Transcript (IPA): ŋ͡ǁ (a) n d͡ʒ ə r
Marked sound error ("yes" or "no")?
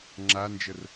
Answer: no